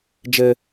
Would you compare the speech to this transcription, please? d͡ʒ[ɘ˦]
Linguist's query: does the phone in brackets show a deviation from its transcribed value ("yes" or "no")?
no